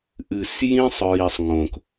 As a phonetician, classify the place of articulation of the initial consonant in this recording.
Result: glottal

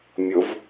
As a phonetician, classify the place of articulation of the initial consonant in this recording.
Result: labial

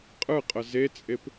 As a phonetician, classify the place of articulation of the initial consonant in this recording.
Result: uvular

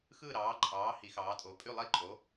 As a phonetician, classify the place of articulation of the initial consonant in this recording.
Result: velar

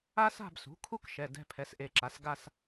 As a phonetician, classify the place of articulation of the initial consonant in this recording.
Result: alveolar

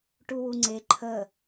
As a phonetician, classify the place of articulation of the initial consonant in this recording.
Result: retroflex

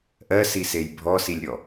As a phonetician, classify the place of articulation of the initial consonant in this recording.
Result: glottal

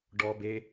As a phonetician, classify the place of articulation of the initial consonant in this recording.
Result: retroflex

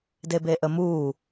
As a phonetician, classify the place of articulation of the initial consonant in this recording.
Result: alveolar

